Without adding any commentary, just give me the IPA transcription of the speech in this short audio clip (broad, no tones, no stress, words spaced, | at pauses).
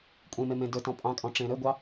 kʷʼẽme mẽdɵtɔ̃ pʼɑ̃kʼɔ̃ ʈ͡ʂẽɾɵɡʷɑ